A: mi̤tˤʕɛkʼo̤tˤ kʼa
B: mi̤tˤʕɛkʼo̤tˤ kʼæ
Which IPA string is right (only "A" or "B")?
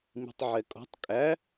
B